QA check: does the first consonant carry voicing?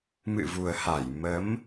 yes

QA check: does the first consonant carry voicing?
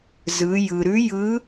yes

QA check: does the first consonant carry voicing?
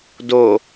yes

